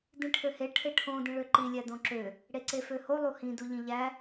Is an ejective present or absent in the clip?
absent